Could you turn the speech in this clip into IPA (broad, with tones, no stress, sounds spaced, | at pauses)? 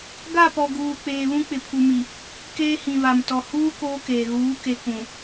ɡ a˦˨ p ɔ˨ ɡ uː˨ k͡p eː˨ β ũ˦ k͡p ɪ˨ pʰ u˨ m i˨ | k eː˦ h ĩ˨ β a˨ m t ɔ˨ h uː˦ k oː˦ k eː˨ ɣ uː˨˦ k e˨ k ũ˨